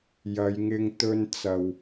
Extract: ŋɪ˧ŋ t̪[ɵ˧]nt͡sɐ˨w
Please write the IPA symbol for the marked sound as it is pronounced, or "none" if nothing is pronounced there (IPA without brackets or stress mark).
ɵ˧